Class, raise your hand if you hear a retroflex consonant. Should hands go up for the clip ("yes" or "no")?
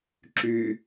no